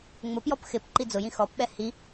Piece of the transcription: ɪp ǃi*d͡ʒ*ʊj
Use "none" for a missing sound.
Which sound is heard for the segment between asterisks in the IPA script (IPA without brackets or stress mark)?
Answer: d͡z